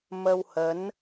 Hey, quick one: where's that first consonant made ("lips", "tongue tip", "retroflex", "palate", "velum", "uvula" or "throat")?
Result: lips